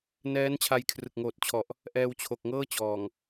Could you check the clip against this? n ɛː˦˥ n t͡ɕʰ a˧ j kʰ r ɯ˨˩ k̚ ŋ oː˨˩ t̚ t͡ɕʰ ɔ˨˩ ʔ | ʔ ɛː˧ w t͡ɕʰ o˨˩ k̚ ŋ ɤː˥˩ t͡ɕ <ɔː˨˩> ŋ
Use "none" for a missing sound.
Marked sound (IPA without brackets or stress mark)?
ɔː˨˩